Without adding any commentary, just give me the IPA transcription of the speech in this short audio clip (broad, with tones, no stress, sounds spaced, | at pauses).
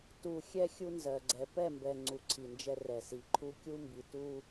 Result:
t u˨ xʲ ɛ˦ xʲ u˦ n z ɜ˨ ɡ͡ǀ ɛ˨ p ɛ˦˨ m b ɛ˨ ŋ͡ǀ u˨ ǀʰ i˨ n d͡ʒ ɛ˦ r ɛ˨ s i˨ ǃʰ u˦ kʲ u˦ m b i˨ t u˦